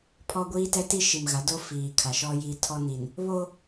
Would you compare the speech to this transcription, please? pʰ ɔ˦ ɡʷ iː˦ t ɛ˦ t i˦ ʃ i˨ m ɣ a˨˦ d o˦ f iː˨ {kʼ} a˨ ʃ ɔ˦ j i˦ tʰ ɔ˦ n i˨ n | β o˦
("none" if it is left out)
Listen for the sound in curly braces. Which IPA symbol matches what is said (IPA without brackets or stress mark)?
kʰ